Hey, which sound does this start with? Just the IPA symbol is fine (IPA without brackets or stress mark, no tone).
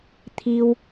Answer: t̪ʰ